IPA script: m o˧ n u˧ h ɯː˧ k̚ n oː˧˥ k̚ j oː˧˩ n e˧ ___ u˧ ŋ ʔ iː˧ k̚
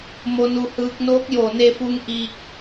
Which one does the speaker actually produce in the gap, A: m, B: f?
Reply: B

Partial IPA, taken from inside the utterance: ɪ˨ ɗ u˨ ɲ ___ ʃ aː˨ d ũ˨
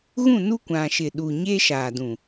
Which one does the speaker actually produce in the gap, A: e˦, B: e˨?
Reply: A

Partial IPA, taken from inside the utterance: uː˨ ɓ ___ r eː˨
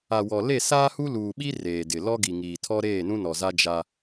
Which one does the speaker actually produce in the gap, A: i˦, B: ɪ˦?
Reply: A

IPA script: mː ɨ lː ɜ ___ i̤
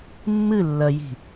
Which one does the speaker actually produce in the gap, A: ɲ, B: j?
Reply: B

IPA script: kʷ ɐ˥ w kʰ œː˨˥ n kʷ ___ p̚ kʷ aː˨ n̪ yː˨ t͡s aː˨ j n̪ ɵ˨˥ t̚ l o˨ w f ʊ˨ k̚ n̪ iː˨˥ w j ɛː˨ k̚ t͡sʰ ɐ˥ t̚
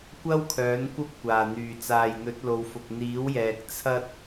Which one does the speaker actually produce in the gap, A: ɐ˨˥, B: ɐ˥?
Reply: B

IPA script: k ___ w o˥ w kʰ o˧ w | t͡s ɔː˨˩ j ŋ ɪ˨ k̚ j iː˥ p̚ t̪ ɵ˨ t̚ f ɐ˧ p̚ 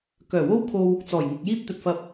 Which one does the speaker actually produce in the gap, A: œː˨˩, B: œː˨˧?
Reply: A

